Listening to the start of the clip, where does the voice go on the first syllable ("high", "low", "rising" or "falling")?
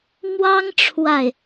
high